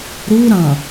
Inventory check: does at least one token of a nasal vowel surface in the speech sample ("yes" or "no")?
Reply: yes